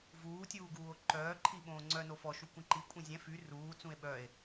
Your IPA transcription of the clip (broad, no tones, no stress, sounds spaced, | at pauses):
v uː tʲ uː ɡ uː o̯ ǃ œː ǃʰ i ɓ õː ŋ͡ǀ œ n o f ɔ ʃ u kʷ ĩ ǃ i kʷʼ ĩ zʲ ɛ̃ f y r uː t͡s ũ e̯ ɓ œ e̯